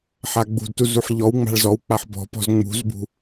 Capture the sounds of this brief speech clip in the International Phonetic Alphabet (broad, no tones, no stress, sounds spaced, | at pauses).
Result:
ħ a ɡ͡b ṳ d t u z u ħ ʎ ɔ w ŋ͡m a̤ ɭ z ɔ w k͡p a ħ b ɔ̤ p ɔ̤ z ŋ͡m ṳ z b ṳ